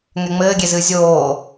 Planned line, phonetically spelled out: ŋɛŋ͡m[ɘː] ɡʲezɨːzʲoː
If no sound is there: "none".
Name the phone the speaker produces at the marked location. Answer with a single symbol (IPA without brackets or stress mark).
ɘː